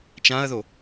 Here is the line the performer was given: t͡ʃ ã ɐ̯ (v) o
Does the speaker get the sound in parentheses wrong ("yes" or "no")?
yes